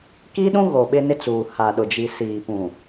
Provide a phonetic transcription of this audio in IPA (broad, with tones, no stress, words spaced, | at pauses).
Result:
ki˦ɗũ˦ɣo˨ ɓɪ˦nɪ˦t͡suː˨ ha˨ɗʊ˨d͡ʒi˨ siː˨pũ˨